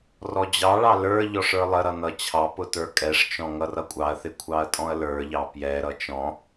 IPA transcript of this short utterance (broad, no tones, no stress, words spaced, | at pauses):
rɔd͡ʑɑɭɑ lə˞ ʎɔʂə˞lˠəɾʌ nʌt͡ɕʰɑpʊ tə˞kʼɛʂt͡ʃɔ̃ ŋʌrʌkʷʼɑɐ̯θɪ kʷʰɑɐ̯tʼɔ̃ɐ̯lə˞ʎɑ pjɛɾʌ t͡ʃɔ̃